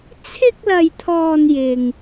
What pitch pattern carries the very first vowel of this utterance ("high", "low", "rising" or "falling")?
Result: high